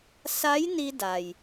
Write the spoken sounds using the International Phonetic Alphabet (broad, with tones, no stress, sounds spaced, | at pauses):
s a˧˥ j n i˧ d a˩ j